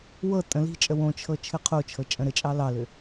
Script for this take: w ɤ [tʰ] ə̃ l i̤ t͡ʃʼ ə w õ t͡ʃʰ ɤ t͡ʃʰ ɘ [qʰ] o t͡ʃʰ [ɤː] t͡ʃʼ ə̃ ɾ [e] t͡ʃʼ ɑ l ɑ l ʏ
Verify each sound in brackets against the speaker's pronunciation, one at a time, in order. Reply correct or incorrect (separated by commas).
incorrect, correct, incorrect, incorrect